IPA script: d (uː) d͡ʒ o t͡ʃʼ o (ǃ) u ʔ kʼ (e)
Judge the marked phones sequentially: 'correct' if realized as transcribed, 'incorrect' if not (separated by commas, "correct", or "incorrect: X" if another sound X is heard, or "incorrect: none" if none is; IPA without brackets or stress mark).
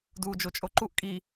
correct, correct, incorrect: i